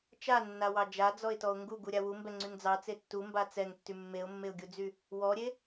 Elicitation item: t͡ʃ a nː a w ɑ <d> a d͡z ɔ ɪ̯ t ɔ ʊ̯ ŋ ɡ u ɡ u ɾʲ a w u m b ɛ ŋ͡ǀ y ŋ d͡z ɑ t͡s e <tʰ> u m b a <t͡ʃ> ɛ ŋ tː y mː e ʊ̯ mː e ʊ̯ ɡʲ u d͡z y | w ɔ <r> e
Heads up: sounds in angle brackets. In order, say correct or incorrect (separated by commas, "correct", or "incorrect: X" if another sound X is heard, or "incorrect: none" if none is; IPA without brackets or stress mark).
incorrect: d͡ʒ, incorrect: tː, incorrect: t͡s, incorrect: ɾʲ